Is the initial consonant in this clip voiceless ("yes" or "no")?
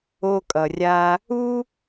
yes